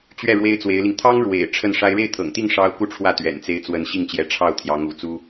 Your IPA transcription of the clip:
t͡ɕɥɛ˥˩ ɻwe˥ɪ̯t͡swe˧˥ɪ̯li˧ŋ t̪ʰɑ˥ŋɻwḛ˨˩ɪ̯ ʈ͡ʂʰə˥˩nʂa˥ɪ̯ ɻe˥˩ɪ̯t̪ʰɤ̰˨˩ŋt̪i˥˩ŋ ʂɑ˥ʊ̯ ku˥˧ʈ͡ʂʰwä˥˩ t̪ɥɛ̰˨˩nt͡se˧˥ɪ̯ t͡swə˧˥nɕi˥˩ŋt͡ɕjɛ˧˥ ʈ͡ʂʰɑ˥˩ʊ̯ t̪ʰjɑ˧˥ŋṵ˨˩t͡su˥

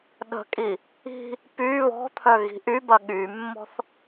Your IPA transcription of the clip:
ɗə̤kʼi | i̤ | py βɔ̤t̪ʰœ ɣi̤ʔybɐ ɠymːɔ̤θ

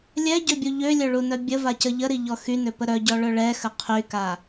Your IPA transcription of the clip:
lʲɛɟøbʲu ʎølʲœɭunœ bʲəvacə ʎəɾiʎɔ xynøpə ɾœɟɔɭœ ɭɛxə qʰyka

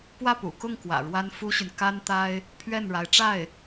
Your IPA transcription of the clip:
pwä˥˩pṵ˨˩kʊ˥˩ŋ kwä̰˨˩ɻwa˥nfu˥ɕy˨n ka˥nt̪a˥ɪ̯ | pʰɥɛ˥˩nɻa˧˥ɪ̯ ʈ͡ʂa˥˩ɪ̯

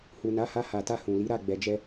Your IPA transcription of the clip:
hu˨na˨˦ha˧ ha˨ta˧ hũ˨li˨˦ɾa˦˨ ɡ͡bɛ˨d͡ʒɛ˧

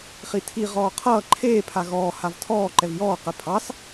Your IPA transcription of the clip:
χitʰi ʁɔːqʰʌː ǃʰeː pʰaɣɔː havtʰɔː ǃɛvjɔː qɛpʰɑs

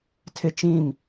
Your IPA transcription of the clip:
tʰɪ˦t͡ʃĩ˦˨m

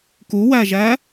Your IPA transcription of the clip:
kuwæʒæ

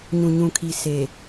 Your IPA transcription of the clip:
ɲũ˨ɲũ˨kʰi˨ se˨

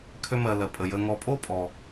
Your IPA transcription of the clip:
kʰø˦mɜ˨lɜ˩ pʼə˩jə˨ŋɔ˨pʼo˥ pʼɔ˩

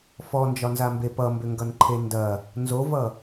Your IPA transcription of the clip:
fɔnd͡ʒɒnzambe pʌmbʏŋɡʌnǃʰe ndɐ | nzovʌ

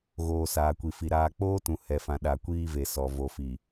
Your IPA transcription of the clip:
ɣoː˨ saː˨kʷi˨fi˨ ɾaː˨k͡poː˦tũ˨ hɛ˨fã˨ɗa˨ kʷiː˦ve˨ sɔ˨ vo˨fi˨

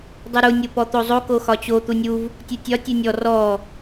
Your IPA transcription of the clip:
dˤuɾu nʲopɔt̪ozˤo koxɒt͡ɕo t̪unʲuv | tʲutʲɒ tʲunʲɔ rɔ

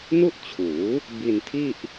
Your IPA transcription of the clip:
nu˥˩ʔt͡ɕʰuː˩˦ | bi˧ntʰi˥˩ʔ

